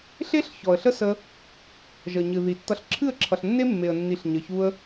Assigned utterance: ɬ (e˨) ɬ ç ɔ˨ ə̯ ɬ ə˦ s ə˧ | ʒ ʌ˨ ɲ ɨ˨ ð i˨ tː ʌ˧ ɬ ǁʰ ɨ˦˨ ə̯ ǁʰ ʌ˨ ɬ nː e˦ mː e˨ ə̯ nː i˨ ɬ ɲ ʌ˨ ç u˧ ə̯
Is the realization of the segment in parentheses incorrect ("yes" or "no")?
yes